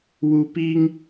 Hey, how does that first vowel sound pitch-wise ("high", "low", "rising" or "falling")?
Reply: low